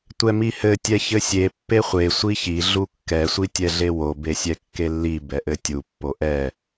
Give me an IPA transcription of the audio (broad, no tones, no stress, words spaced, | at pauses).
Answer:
tʷɛmihɘ tʲɛçɘsʲe pːeχʷe sʷiçi ɮukːɛ sʷitʲɛɮewo besʲɛkːelːi bɛʔɘtʲu pːoʔɛ